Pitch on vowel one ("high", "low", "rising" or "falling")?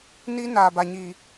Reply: high